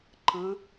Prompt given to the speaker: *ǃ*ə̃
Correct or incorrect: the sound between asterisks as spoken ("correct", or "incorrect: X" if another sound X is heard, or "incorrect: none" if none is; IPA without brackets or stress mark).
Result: correct